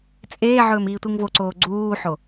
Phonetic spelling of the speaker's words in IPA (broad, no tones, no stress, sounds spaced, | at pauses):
t͡sʼ eː ʕ ɵː m iː tʷ i ŋ v o ǀ oː ɡ͡ǀ uː ħ o